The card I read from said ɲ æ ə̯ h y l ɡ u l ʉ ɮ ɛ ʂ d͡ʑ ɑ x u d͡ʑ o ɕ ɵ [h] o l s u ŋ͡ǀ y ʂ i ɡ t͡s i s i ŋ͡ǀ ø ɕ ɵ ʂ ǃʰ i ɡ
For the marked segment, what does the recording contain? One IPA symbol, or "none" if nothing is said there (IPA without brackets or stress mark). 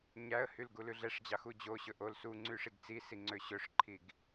ʔ